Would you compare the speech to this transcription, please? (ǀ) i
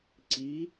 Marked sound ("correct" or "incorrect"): correct